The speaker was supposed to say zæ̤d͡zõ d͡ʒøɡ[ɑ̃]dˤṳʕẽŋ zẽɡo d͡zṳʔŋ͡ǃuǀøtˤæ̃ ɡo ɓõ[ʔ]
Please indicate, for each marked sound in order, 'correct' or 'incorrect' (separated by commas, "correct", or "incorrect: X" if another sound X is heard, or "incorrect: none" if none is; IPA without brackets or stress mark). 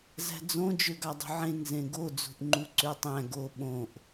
incorrect: ɑ, correct